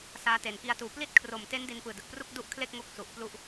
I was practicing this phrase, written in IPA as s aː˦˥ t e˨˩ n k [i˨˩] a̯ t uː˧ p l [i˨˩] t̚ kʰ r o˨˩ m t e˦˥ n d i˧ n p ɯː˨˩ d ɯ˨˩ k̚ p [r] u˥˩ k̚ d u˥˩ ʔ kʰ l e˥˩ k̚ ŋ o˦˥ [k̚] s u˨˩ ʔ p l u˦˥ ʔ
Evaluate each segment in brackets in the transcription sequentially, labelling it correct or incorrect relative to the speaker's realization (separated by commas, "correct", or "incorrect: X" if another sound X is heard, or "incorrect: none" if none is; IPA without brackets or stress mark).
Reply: incorrect: i˦˥, incorrect: i˥˩, correct, correct